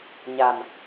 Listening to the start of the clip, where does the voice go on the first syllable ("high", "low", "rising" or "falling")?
low